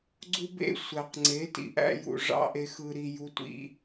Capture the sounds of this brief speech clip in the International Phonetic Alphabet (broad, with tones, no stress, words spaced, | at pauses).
ɡ͡ǀu˦bḛ˦˨ sʷæ˨qŋ͡ǀe˨˦tḭ˨ ʔæ̰˧jṵ˨ ʐɑ̰˦ʔe˧xɯ˧ɾi˧ ju˦tʷḭ˦